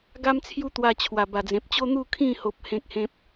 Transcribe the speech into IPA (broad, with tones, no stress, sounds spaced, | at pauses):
ɡ a˦ m t͡sʰ j u˦ t̪ w a˧ t͡ɕʰ w a˨˩ b a˨˩ d͡z ẽ˨ p̚ t͡ɕ o˦ n̪ u˥˧ kʰ ĩ˥˧ h o˦ p̚ h ẽ˦ k̚ h ẽ˦ p̚